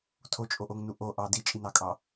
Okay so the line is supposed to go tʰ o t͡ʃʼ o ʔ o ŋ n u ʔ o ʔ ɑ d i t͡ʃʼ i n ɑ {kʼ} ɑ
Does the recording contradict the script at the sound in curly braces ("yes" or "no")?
no